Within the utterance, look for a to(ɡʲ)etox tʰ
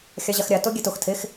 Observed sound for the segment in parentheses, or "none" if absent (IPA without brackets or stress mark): ɡʲ